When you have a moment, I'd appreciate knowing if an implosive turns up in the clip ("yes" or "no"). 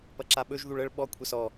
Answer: yes